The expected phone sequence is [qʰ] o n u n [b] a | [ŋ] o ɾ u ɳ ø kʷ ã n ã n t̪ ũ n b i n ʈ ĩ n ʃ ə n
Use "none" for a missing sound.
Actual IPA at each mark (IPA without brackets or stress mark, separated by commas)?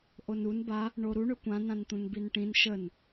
ʔ, b, ɳ